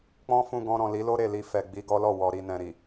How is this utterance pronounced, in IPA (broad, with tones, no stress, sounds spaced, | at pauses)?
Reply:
k͡p ɔ̃˦ f ũ˧ ɡ ɔ̃˧ ɾ ɔ̃˨ l i˨˦ l o˦ ɾ e˦˨ l i˧ f ɛ˨ ɡ͡b i˧ ɡ ɔ˦ l ɔ˦˨ w ɔ˧ ɾ i˧ n ɛ̃˨ ɾ i˨